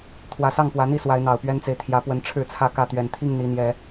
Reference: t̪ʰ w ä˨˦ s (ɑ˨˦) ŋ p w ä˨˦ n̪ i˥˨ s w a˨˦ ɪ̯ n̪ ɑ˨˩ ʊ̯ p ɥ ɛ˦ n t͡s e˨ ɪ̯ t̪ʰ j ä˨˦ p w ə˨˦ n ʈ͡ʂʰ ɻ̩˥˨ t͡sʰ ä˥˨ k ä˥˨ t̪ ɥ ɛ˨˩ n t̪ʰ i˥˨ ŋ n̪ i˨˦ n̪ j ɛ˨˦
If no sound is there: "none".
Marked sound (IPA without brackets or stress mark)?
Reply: ɑ˥˨